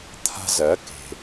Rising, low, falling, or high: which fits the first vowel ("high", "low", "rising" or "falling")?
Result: high